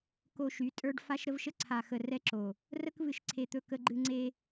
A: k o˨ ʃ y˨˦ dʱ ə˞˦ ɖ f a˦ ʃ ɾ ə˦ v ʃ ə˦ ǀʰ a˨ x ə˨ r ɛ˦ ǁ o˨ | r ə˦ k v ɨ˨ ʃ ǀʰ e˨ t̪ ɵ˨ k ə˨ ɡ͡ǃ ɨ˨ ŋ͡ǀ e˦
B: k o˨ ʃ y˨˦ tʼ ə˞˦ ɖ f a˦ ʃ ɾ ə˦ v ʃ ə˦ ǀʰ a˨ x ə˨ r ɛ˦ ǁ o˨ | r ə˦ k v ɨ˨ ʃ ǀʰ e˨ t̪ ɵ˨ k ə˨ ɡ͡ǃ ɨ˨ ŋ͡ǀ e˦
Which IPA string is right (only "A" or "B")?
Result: B